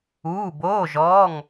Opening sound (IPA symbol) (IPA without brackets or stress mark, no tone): uː